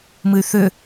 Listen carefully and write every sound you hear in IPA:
m ɨ y̯ θ ʏ

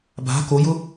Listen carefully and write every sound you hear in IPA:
b a̤ k o j ʊ

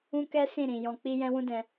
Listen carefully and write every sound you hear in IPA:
ũ˦ k ɛ˦ s ĩ˦˨ ɾ ĩ˨ j ɔ̃˧ k͡p i˦ j ɛ̃˦ w ũ˦ d ɛ̃˧

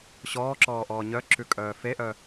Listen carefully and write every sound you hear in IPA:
ɕ ɔː ǁ ɔː ʔ ɔː ɲ œ ǁ ʉ kʼ œː f e ʔ œ

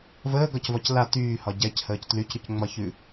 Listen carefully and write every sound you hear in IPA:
v əː ɡ ɒ c v ɒ c l a t yː h ɒ ɟ ɛ c h əː c t l y c ɾ ʉ c ŋ͡m ɒ ç ʉ

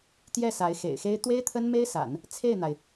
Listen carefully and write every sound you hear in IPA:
t̪ j ɛ˥˩ s a˧˥ ɪ̯ x ḛ˨˩ ɪ̯ x e˥ ɪ̯ t̪ w e˥ ɪ̯ t̪ʰ ə˥ n m e˥ ɪ̯ s a̰˨˩˦ n | t͡sʰ e˥˩ ɪ̯ n̪ a˩ ɪ̯

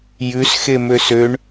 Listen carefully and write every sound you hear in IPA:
j ʉ s x e m ø s ø ɳ

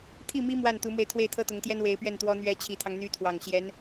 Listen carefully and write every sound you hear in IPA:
t̪ʰ i˥˩ m i˥ m w a˥˩ n t̪ u˧˥ m w e˧ ɪ̯ t̪ʰ w e˥˩ ɪ̯ t̪ʰ ɤ˥ t̪ ʊ˧˥ ŋ t̪ j ɛ˥ n w e˧˥ ɪ̯ p ɥ ɛ˥˩ n t̪ w ɔ˥ n̪ ɥ ɛ˧˥ t͡ɕʰ i˨˩ t̪ʰ ɑ˦ ŋ n̪ y˧˥ t̪ʰ w ɑ˨˩ ŋ ɕ j ɛ˧˥ n

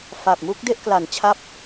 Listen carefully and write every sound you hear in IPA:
f a˨˩ p̚ m u˦˥ k̚ d e˥˩ ʔ k l a˨˩ n t͡ɕʰ a˦˥ p̚

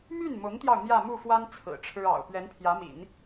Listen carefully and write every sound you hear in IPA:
m y˥˩ n m ʊ˧˥ ŋ t̪ j ɑ˧ ʊ̯ n̪ j ä˥˧ m u˥˩ f w a˥ n t͡sʰ ɹ̩˨˩ ʈ͡ʂʰ ɻ̩˥ ɑ̰˨˩ ʊ̯ p ɥ ɛ˧˥ n pʰ j ä˧˥ m ḭ˨˩˦ n

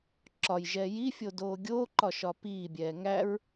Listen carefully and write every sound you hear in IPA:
ǁ ɒ j ʒ ɛː j i fʲ o d oː ɡʲ oː ǃ ɒ ʃ ɒ p iː bʲ ɛː ŋ æ ɹ

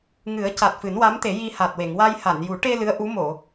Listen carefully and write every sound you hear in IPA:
ŋ ɨ˨˩˦ ə̯ c a˨˩ t̚ f ɨ˨˩˦ n w a˧˥ m t̪ e˨˩˦ j i˧ h a˨˩ t̚ w e˨˩˨ ŋ w a˧ j h a˨˩˨ n j u˨˩˦ ʈ e˧ l ɨ˧˥ ə̯ ʔ u˧˥ m o˨˩˨

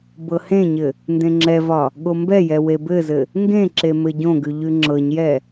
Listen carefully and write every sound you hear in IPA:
b ɤ h ẽ ɲ ɘ | n d ẽ ŋ͡ǁ ɛ v ɒ | ɠ o m b ɛ j ɛ w e b ɘ z ɘ | ŋ ɡ ẽ ǁ e m ɘ ɟ õ ɡ ʉ ʎ ʉ ŋ͡ǁ ɤ ɲ j ɛ

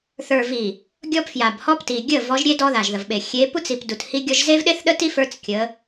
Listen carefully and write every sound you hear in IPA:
θ ə˞˨ v i˨ | ɡʲ ɔ˦ p f j a˨ b h ɔ˦ p t i˨ ɡʲ ə˦˨ v ɔ˨˦ ʒ ɾʲ e˦ d ɔ˦ ð a˨ ʒ ð ə˨ v ɓ e˨ xʲ e˨˦ p u˦ t͡s i˨ p d u˨ t h i˦ ɡʲ ɔ˦ ʒ z e˦ v ɗ e˦ θ ɗ ə˦ t i˦ f ə˞˦ t͡s kʲ ə˨˦

